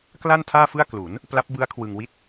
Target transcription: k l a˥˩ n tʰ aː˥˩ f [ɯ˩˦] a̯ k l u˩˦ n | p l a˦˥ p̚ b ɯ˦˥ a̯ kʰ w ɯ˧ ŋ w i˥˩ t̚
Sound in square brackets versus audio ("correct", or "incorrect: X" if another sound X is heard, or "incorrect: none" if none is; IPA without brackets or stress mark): incorrect: ɯ˥˩